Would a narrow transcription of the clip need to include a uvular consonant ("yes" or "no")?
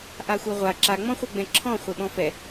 yes